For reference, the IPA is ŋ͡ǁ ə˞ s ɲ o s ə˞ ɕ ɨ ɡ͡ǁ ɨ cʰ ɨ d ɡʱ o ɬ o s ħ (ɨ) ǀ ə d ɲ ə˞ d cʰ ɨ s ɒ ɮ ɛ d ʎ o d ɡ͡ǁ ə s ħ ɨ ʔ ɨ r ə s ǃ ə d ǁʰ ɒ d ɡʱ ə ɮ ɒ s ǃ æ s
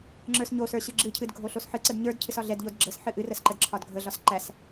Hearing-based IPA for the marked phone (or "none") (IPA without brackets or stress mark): ɨ